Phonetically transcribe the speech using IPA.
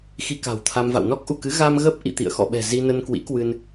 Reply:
xi˧ka̤˨˩wt̪ʰa˧mva̰˧˨w nɔ˦˥k̚ʔu˧˩kɨ˨˦ ɣa˧mɣə˦˥p̚ ʔḭ˧˨ t̪ḭ˧˨ə̯xɔ̰˧˨ɓɛ̤˨˩ zi˧nə˧nkwḭ˧˥kwɨ˧n

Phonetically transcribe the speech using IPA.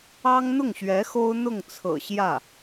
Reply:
ɑ˥ŋn̪ʊ˥˩ŋɕɥɛ˧˥ xo˥ʊ̯n̪ʊ˥˩ŋt͡sʰɤ̰˨˩ɕjä˥˩

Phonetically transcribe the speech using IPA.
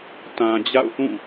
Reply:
tã˨d͡ʑa̰˦˨ʊ̯θũ˦˨

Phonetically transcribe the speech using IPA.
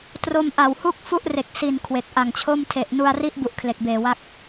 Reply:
tro˧mʔa˨˩whu˥˩k̚ fu˦˥ʔre˨˩k̚ si˨˩n kʰwe˨˩k̚ʔa˨˩ŋt͡ɕʰo˥˩m tʰe˨˩ʔnu˧a̯ri˦˥ʔbu˨˩ʔ kʰle˨˩k̚beː˨˩wa˦˥k̚

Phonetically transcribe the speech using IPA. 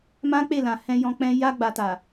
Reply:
mã˦k͡pe˦˨lã˨ hɛ̃˧jɔ̃˧k͡pɛ̃˧ ja˧ ɡ͡ba˨ta˨

